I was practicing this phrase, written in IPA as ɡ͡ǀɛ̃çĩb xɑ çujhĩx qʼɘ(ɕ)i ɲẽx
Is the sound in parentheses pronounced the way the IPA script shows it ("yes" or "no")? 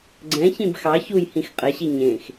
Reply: yes